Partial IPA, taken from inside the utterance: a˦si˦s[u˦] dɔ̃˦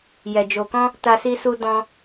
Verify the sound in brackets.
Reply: correct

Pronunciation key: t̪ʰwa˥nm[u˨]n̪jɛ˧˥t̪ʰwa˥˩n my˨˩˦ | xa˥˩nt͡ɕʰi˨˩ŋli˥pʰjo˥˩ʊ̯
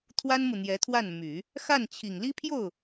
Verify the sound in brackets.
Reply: correct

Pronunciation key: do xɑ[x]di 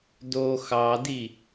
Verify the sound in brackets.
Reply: incorrect: none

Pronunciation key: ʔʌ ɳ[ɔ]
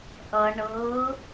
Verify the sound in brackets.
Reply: incorrect: ɤ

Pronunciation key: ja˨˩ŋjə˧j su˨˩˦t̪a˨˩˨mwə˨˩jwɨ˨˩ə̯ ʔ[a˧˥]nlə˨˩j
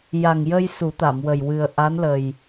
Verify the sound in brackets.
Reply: correct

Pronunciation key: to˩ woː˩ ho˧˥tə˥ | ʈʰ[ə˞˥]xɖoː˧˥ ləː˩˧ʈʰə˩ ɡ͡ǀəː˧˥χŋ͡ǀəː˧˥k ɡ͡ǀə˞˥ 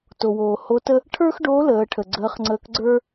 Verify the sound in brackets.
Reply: correct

